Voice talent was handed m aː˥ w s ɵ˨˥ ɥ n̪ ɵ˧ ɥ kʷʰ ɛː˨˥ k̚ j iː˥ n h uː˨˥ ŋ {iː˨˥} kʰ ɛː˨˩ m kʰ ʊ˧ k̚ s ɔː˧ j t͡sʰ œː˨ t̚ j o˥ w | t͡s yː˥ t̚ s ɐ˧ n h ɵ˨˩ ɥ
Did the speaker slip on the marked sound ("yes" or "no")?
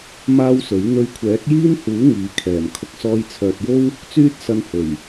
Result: no